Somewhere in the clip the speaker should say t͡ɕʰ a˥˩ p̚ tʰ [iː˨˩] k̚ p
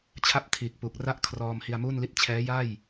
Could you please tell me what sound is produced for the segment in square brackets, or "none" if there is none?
iː˨˩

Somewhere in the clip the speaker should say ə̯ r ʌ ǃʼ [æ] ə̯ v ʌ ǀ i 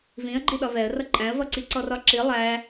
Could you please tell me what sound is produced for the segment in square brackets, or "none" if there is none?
æ̃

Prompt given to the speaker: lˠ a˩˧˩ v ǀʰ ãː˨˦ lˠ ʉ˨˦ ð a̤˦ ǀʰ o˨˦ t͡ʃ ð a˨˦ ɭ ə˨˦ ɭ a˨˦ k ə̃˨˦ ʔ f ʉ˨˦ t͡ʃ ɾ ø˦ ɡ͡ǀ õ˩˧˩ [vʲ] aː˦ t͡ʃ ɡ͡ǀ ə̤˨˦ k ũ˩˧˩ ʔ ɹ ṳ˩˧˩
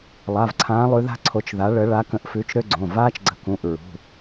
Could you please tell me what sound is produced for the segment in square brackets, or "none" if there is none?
v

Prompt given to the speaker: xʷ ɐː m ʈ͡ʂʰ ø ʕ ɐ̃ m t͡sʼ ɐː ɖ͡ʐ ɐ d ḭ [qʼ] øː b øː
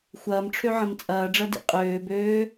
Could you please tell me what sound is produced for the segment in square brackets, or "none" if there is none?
qʼ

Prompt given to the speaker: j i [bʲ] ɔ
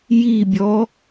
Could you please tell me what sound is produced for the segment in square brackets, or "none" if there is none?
bʲ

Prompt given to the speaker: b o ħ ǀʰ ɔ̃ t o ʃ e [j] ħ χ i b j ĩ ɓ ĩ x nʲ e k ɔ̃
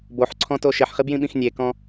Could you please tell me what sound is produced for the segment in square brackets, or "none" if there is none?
none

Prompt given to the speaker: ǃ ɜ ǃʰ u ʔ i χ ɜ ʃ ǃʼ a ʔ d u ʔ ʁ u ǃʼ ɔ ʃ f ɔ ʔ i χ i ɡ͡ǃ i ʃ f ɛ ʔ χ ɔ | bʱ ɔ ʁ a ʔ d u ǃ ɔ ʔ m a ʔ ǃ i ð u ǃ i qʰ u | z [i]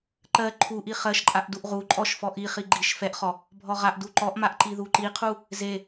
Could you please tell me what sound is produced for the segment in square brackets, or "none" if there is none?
e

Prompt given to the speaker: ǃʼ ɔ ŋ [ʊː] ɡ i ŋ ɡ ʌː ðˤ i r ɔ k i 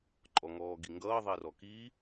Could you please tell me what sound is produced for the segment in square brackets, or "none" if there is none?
ɔː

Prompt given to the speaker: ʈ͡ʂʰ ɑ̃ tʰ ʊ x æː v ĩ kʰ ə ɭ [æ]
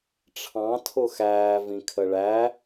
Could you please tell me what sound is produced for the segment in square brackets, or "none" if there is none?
æ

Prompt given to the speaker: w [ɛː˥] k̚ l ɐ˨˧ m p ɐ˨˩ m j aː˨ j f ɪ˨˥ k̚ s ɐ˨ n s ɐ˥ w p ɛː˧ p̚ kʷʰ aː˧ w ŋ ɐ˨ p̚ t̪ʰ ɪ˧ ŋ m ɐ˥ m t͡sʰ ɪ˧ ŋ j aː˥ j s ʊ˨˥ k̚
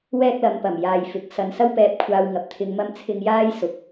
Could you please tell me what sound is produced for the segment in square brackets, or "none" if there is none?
ɛː˥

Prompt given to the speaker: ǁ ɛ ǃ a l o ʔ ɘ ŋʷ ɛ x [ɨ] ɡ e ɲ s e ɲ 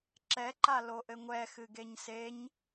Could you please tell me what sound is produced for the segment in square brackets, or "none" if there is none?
ɨ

